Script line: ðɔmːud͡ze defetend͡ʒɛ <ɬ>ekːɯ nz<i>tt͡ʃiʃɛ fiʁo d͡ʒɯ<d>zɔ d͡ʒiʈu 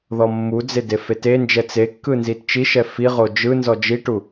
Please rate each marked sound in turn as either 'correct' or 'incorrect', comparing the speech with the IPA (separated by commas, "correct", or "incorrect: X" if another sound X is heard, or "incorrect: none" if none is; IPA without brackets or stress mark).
incorrect: t͡s, correct, incorrect: n